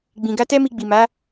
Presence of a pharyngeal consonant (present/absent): absent